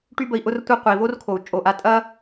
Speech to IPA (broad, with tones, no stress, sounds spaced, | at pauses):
ʈ y˦ b ə˧ i̯ ʔ ʊ˧ r tʷ əː˧ qʷ ə˨ i̯ v o˦ r kʰ o˨ u̯ t͡ʃʼ o˨ ʔ a˧ tʼ ɐː˦